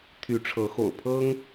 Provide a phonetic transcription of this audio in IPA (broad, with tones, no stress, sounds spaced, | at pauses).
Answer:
t̪ʰ y˨˦ ʈ͡ʂʰ ɤ˨˦ x o̰˨˩ ʊ̯ pʰ ɤ˦ ŋ